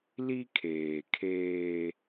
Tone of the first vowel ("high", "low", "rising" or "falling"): high